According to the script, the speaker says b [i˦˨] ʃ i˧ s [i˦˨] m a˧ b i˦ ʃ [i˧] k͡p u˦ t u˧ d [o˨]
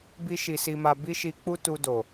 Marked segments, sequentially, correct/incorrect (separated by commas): incorrect, incorrect, correct, correct